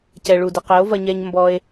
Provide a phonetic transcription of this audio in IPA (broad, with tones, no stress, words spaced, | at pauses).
cɛ˨ɭu˨dɘ˨ qɘ˨˦o̯vɐ˧ɲɛ˧ɲ mbɔ˧e̯